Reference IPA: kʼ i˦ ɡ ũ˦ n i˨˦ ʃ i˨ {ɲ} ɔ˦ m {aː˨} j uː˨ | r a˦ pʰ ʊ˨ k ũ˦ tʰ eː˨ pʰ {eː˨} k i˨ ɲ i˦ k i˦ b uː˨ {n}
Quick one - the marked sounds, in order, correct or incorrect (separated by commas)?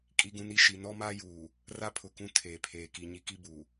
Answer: incorrect, incorrect, correct, incorrect